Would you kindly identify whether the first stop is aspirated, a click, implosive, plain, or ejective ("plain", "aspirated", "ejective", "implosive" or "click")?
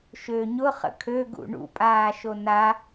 aspirated